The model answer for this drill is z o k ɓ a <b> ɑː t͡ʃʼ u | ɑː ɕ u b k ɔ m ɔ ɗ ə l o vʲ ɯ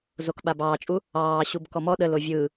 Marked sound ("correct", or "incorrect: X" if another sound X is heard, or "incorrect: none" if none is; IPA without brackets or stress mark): correct